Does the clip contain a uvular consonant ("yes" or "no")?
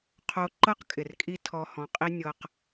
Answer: yes